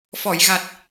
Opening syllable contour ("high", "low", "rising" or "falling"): low